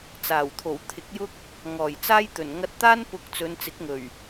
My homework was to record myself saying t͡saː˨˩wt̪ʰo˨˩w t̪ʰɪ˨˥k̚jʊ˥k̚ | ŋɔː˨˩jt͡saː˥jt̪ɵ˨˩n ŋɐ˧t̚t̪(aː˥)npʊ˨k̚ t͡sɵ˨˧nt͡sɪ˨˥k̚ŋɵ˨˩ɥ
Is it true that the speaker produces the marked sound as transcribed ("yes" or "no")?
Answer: yes